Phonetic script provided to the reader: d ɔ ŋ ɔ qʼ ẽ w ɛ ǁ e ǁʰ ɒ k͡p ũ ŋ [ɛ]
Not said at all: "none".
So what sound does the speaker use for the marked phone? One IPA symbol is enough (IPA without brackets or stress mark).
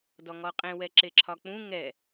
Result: ɛ